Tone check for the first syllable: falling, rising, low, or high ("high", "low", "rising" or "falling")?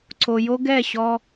low